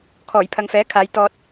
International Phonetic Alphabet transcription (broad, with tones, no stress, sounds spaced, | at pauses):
kʰ ɔː˨˩ j pʰ ɐ˨ ŋ f ɛː˨˥ kʰ aː˨˧ j t̪ ɔː˧ t̚